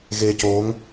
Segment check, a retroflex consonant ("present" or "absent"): absent